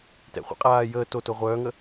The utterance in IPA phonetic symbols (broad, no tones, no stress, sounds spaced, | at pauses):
t ɛ̰ χʷ ɛ̰ qʼ aː j əː t o t o ʁʷ œː ŋ ə